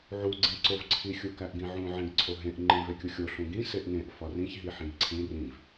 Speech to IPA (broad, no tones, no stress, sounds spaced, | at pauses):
ʕ u ɡ͡ǀ ĩ ǀ o v ǀʰ i xʲ u k æ ʔ ɡ ĩ ʕ ũ ʕ ẽ ɡ ǀʰ o ɦ ẽ ʔ ŋ͡ǃ ĩ v e kʲ u xʲ o ɬ ũ ɡ ĩ s e ʔ ŋ ẽ ʔ f ɒ r ĩ ç ɦ i ħ ĩ ɡ ǀʰ ĩ r ĩ v